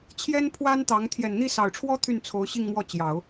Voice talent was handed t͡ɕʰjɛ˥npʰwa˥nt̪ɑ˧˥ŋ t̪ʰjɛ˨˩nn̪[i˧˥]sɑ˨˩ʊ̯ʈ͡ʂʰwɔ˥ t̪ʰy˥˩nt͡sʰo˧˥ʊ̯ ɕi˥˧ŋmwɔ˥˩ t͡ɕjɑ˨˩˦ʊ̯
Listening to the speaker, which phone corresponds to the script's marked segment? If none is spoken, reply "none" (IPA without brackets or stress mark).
i˥˩